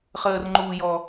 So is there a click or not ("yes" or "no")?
yes